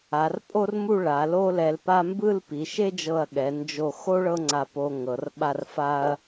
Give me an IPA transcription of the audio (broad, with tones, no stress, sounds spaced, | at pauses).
a˩˧ r pʼ o˥ r m u˥˧ ɭ a˩˧ l o˥ l ɛ˧ l p a˥ m b ɯ˥˧ l p i˩˧ ʃ e˥ d͡ʒ ɤ˧˩ ɐ̯ ɠ ɛ˩˧ n d͡ʒ o˧˩ x o˥ ɭ ɤ˥ ŋ͡ǀ a˧ p o˧ ŋ ɤ˩˧ r ɓ a˥˧ r f a˧ ɐ̯